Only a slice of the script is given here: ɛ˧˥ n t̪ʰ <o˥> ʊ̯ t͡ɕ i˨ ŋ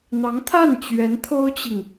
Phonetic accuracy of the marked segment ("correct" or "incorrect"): correct